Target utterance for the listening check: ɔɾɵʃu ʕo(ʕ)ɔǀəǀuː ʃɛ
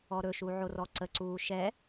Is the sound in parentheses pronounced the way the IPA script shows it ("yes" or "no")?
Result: no